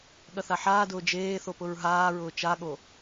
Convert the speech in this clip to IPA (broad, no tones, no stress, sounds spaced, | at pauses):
ɠ ɐ θ a ħ aː d ʊː d͡ʒ eː θ o p ʊ ɹ ɦ aː ɹ ʊː t͡ʃ a ɠ o